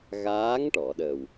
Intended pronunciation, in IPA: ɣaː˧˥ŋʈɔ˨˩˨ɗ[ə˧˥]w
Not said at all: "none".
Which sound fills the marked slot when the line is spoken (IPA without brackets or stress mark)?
ə˨˩